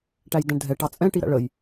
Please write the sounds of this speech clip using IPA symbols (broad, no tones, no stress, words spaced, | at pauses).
ʈæjdæ̃ɳdʱɛ ʈɑt͡sʼɛ̃ ʈiɾæ̰ɭəj